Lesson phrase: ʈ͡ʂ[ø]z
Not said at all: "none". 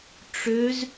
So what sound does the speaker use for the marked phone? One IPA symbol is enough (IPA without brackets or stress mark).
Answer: ø